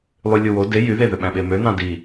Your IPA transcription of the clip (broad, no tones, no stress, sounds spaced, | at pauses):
lˠ y lʲ u w o d e j y ð e ð ø ɓ æ̃ ɓ e m ø n ɑ̃ d i